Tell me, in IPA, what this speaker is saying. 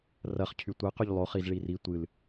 r ɐ χ cʰ y tʷ ɛ q y ʎ lˠ o χ i z ɭ i r i tʷ ɨ l

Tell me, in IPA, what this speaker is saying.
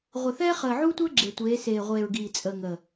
ʁʷ ɪ˨ θ ɛː˦ χ əː˨ ʕ u˦ tʷ əː˦ ɡ͡ǁ e˨ tʷ eː˨˦ s eː˨ ʁʷ eː˨ ɹ ɡ iː˨ t͡sʼ əː˨ ŋ ə˨

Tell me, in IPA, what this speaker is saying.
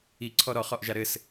i ǀʰ ɔ ɾ ɔ χ ɔ ʔ ʒ a ɾ ɘ s

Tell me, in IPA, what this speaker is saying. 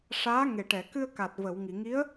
ʂ aː˧˥ ŋ e˨˩ ʈ ɛ˨˩˨ k ɨ˧ ə̯ k a˨˩ t̚ v ə˨˩˨ w ŋ i˨˩˨ ŋ i˧˥ ə̯

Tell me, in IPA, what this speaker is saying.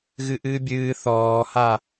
ɣ ɨ ʔ ɨː bʲ ɨː θ ɔː h a

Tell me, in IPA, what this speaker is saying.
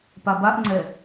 p a b a ʔ ŋ͡ǀ ɛ

